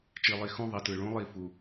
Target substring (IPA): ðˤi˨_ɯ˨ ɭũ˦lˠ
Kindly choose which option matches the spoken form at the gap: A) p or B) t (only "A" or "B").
B